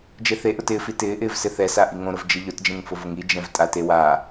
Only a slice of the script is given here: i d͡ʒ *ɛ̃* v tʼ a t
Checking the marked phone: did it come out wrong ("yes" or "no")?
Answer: no